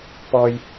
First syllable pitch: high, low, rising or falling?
high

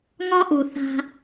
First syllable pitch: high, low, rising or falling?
high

